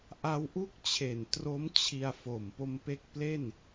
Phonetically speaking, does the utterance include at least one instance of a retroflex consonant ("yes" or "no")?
no